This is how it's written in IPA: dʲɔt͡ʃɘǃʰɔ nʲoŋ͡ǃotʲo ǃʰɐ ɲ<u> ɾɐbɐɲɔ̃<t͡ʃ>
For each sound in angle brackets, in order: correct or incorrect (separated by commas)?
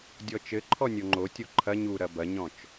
correct, correct